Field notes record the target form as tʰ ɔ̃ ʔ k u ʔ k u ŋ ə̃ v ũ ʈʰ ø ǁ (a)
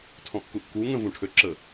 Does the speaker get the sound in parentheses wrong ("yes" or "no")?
yes